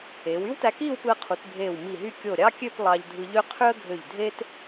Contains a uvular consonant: yes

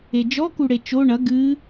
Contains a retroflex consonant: yes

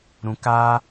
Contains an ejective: no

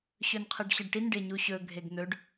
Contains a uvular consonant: yes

